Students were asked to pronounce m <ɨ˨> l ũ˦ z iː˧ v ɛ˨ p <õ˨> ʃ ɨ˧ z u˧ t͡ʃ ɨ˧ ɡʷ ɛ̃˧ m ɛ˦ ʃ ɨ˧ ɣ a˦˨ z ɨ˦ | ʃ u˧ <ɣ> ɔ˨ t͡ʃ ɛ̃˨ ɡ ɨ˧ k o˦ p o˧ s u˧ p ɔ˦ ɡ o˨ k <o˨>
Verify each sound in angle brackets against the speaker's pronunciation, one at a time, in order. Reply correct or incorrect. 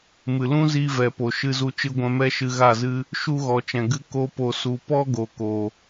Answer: correct, incorrect: o˨, correct, incorrect: oː˨

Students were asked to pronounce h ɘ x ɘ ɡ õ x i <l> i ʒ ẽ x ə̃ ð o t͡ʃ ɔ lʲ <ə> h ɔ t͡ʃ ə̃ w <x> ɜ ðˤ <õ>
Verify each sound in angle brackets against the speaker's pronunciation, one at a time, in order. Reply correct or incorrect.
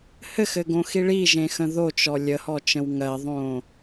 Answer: incorrect: ɭ, correct, incorrect: ŋ, correct

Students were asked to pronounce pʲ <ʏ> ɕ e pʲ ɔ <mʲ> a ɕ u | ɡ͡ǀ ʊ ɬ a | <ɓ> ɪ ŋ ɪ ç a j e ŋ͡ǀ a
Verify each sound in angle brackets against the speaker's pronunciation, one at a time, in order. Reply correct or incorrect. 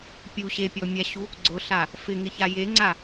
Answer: incorrect: u, correct, incorrect: f

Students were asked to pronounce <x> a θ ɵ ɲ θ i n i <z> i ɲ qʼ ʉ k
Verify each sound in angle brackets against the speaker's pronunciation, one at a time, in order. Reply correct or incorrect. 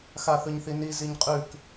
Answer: correct, correct

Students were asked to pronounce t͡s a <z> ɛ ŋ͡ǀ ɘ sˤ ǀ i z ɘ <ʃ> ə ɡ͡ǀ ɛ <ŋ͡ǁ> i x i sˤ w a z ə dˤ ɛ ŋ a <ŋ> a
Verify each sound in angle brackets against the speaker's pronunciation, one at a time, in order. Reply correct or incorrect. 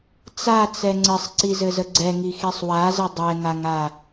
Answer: incorrect: t͡s, incorrect: z, incorrect: ŋ, correct

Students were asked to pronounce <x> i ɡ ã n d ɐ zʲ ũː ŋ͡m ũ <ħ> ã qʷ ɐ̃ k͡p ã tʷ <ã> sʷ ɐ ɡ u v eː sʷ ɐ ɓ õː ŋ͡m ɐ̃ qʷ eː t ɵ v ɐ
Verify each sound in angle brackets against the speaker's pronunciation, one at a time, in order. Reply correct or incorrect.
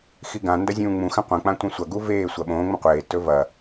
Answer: correct, incorrect: x, incorrect: ɐ̃

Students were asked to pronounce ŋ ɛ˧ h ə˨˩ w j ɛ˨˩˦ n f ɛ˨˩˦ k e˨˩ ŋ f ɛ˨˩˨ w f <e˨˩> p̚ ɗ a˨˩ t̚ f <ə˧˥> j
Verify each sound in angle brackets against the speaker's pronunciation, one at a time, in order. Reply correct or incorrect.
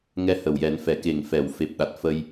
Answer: correct, incorrect: ə˧

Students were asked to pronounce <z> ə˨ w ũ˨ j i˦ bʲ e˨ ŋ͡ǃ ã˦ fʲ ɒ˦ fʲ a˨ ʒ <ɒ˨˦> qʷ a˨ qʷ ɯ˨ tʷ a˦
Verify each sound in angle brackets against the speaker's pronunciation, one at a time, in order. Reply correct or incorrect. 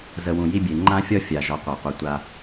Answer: correct, correct

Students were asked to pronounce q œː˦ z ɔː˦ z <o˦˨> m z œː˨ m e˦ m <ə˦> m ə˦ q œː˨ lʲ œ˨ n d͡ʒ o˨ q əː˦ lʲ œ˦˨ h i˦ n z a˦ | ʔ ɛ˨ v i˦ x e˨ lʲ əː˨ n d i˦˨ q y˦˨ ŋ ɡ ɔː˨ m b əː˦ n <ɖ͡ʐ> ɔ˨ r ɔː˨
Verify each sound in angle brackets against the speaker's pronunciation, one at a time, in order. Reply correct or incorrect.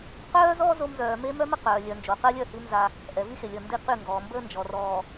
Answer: incorrect: o˦, incorrect: œ˦, incorrect: d͡ʒ

